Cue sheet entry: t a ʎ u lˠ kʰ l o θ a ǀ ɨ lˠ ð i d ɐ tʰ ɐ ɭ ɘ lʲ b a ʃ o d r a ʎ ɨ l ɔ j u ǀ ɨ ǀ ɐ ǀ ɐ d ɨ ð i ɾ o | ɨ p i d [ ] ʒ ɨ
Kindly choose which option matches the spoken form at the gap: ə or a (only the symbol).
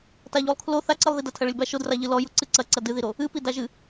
a